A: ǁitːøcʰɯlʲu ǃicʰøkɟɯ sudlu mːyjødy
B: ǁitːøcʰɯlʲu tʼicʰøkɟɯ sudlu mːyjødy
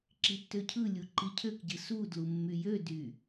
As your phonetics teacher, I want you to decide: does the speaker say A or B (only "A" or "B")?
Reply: A